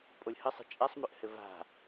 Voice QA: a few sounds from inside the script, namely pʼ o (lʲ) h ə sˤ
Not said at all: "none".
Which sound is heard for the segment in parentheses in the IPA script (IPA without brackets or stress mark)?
lʲ